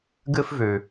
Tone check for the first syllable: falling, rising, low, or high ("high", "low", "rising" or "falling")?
high